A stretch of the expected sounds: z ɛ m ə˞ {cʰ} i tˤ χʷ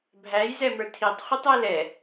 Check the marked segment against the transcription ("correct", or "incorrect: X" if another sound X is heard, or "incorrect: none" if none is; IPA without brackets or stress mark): incorrect: tʰ